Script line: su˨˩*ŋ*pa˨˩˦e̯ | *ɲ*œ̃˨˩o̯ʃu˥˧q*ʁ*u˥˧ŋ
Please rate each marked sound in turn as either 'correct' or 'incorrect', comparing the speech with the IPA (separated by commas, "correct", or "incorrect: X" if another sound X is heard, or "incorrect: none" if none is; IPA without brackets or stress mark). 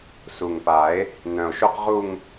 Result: correct, incorrect: n, correct